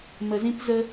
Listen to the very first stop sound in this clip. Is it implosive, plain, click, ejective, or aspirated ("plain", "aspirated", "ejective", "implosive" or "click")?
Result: plain